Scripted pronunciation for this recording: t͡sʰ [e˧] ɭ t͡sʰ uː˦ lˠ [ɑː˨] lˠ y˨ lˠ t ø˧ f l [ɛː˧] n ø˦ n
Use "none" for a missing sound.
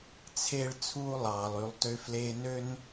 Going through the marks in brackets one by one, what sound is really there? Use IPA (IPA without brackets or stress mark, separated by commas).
e˦, ɑː˨, eː˧